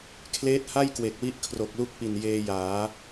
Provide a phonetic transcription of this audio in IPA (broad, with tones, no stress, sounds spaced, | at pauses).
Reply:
kʰ l eː˦˥ t̚ h a˥˩ j k w e˨˩ k̚ w i˦˥ ʔ kʰ r o˨˩ k̚ l u˦˥ k̚ p i˨˩ n j eː˧ j aː˩˦